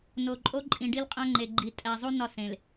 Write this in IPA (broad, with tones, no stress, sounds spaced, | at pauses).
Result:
n o˨ ǃʼ o˦ ǃʼ ĩ˨ ɖ i˦ l qʼ æ̃˦ ŋ͡ǃ e˨ ɡ͡ǃ i˨ tʼ æ˨ zˤ u˦ n ɒ˦˨ s ẽ˨ l